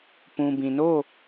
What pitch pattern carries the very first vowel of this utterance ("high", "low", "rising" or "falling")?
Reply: low